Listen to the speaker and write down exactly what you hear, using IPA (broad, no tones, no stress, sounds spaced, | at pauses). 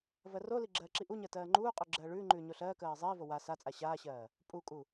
v ɜ r o l i ɡ͡ǁ ɜː ǁ i ʔ u ɲ ɜ t ɜː ŋ͡ǃ uː qʼ ʉ ɡ͡ǁ ɜː ɭ ʉː ŋ͡ǃ ʉː ɲ o ɬ ɜː k ɜː ɪ̯ zˤ iː v o w a s a t͡sʼ a ɕ aː ɕ ɜː | pʼ u kʼ u